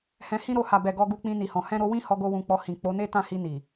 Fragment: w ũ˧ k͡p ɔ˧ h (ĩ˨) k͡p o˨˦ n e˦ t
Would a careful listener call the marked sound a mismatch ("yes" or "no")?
no